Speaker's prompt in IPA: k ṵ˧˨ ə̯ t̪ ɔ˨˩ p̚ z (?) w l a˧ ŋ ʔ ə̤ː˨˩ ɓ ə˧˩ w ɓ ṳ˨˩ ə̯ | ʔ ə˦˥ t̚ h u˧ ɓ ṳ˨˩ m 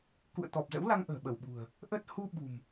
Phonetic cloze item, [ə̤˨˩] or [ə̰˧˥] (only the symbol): ə̰˧˥